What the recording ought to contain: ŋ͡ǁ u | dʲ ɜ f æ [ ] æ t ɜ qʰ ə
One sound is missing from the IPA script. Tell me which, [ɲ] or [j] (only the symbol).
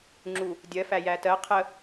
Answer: j